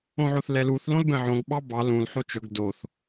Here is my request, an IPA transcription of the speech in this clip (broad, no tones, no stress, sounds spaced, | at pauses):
õ ʕ o θ l ɛ l u θ l õ l b ɛ̃ ʕ õ ɡ ɓ ɑ b ɑ l ũ l ħ o t͡ʃ ɵ ɡ d o θ